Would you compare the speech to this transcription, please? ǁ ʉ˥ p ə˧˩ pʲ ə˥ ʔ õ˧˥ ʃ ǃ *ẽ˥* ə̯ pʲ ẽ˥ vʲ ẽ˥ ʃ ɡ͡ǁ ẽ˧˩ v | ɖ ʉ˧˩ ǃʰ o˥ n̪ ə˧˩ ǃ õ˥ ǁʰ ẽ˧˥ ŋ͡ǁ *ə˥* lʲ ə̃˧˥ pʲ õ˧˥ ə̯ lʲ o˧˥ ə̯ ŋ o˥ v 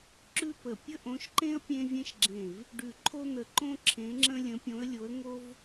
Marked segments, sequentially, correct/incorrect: correct, incorrect: ə̃˥

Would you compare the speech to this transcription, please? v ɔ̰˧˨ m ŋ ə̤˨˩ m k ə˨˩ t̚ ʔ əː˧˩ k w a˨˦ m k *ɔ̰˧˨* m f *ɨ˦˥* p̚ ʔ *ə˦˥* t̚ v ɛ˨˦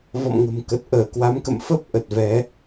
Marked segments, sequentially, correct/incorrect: incorrect: ə̰˧˨, incorrect: ə˦˥, incorrect: ə˨˩

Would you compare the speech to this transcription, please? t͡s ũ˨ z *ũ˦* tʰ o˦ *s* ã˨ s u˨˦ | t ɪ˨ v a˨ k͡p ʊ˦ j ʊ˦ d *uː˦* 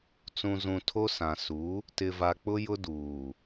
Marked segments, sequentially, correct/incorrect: incorrect: ũ˨, correct, incorrect: uː˨

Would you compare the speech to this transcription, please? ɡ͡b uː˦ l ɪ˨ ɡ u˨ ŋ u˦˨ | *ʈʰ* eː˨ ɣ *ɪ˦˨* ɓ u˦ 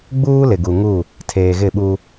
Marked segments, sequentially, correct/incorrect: incorrect: tʰ, correct

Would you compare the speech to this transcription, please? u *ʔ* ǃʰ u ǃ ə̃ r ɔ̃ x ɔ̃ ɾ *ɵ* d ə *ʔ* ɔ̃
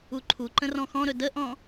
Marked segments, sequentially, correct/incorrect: incorrect: none, correct, correct

